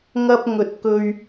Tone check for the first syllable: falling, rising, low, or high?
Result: high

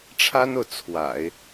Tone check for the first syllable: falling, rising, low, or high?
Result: high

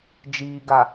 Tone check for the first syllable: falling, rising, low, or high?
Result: low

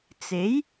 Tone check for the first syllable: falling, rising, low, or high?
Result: rising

